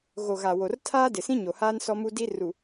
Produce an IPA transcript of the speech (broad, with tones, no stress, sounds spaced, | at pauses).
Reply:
ɣ o˨ ɣ a˨ w o˨ r tʰ aː˦ d ɪ˨ s ĩ˦ ɲ o˨ h aː˦ n s ɔ˦ m u˦ d i˦ r u˨